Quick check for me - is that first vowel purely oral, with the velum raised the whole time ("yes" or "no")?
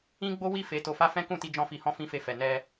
no